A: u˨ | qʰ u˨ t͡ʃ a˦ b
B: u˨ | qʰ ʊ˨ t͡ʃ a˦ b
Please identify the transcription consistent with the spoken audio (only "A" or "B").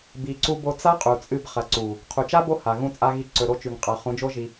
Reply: A